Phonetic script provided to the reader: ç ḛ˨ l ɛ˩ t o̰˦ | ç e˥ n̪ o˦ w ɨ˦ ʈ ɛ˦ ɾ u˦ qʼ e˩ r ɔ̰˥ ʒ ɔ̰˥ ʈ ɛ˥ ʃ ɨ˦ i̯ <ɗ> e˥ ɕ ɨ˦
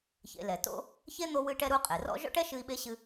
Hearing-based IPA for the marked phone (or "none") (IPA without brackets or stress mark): ɓ